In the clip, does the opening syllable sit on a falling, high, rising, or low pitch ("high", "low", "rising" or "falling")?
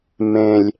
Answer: low